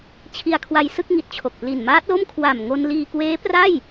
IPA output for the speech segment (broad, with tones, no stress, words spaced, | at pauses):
t͡ɕʰi˧a̯kʰwa˧jsɯ˥˩k̚ŋi˨˩t̚ t͡ɕʰo˨˩k̚pli˨˩nmaː˦˥t̚lo˥˩m kʰwa˨˩m ŋo˧n liː˧kweː˦˥pra˥˩j